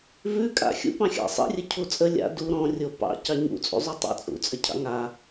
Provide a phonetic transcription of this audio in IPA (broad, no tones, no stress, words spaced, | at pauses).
vʉkʼa̰ xʲṵpɑ̃ xʲɑ̰sˤḭrʲə cʰut͡sʼə lʲa̰ du ɾɔ̃ rʲopɑ̰ cɑɲṵt͡sʼṵ zˤʉtˤa̰t͡sʼṵt͡sʼə cʰɑ̰ŋa